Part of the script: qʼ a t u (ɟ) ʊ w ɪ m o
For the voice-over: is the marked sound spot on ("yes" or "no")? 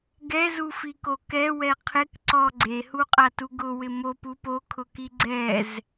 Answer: no